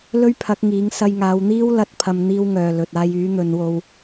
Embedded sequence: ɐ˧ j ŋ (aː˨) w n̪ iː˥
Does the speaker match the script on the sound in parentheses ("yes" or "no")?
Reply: no